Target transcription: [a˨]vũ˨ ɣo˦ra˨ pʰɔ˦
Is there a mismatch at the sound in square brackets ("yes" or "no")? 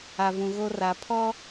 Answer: no